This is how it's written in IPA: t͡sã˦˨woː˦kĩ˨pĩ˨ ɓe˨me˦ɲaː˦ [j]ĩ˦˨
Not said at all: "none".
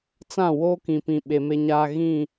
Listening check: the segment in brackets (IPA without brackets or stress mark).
ɣ